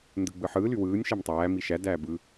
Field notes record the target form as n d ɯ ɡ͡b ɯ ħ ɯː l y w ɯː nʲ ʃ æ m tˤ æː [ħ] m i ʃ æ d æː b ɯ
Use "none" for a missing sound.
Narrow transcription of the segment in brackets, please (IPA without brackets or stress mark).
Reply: none